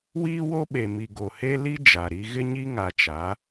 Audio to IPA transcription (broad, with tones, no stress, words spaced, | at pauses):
wiː˦wo˦ɓe˨mi˨ ɡo˨he˦ li˦ d͡ʒa˨ɾi˦ ɣɪ˦ɲi˦ ŋa˨t͡ʃa˨˦